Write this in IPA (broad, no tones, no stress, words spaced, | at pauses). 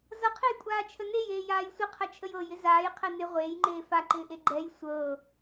zʌqʰejkʷʼaːt͡ʃʰə nejeːjaːj sʷɪqʰɐt͡ʃʰəj ɤjɪ zaːjqʰɛ nɪ ʁʷeːjŋ͡ǃeː faǃɪːʔe ɡ͡ǃɛj sʷɤ